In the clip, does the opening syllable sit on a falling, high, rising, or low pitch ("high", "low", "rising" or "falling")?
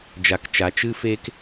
low